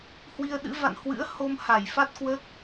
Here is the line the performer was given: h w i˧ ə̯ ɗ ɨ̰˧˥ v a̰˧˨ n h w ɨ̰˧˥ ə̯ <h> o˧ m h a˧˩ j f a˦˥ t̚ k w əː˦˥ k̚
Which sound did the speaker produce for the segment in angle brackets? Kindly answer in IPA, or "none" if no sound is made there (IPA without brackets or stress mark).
h